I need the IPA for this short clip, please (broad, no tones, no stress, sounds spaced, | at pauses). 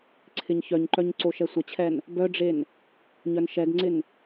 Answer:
ǀʰ ɪ ɲ ç œ ɲ ǃ œ ɲ ǀ o ʃ ɛ sʷ ə t͡ɕʰ ɛ n | b œ ɖ͡ʐ e n | ɲ œ n ʃ ɛ ɡ ŋ͡ǀ ɪ n